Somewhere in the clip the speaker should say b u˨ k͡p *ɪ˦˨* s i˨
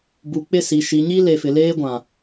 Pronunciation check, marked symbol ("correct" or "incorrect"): correct